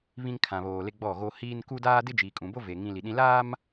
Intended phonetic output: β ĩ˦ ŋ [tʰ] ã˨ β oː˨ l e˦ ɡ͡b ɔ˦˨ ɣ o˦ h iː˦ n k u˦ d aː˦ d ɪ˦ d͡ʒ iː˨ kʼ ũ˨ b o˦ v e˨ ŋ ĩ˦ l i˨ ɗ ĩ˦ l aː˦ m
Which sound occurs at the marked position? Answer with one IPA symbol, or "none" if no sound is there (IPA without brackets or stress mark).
kʰ